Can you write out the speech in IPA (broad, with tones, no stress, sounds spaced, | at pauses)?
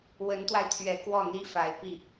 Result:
w ə˧˥ n t̪ w a˧ ɪ̯ t̪ʰ ɥ ɛ˨˩ k w ɔ˥˩ n̪ i˥ f a˧˥ ɪ̯ p i˥˩